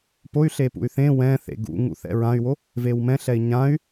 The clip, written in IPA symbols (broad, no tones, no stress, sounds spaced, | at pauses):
p o y̯ ɬ e p ṵ y̯ θ ẽ w ɛ̃ θ ḛ ɡ ṵ ŋ ṵ θ ɛ̰ ɹ ã y̯ w o | v e w m ɛ̃ ɬ ɛ i̯ ɲ ã y̯